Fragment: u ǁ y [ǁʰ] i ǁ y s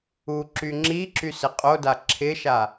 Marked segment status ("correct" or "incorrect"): incorrect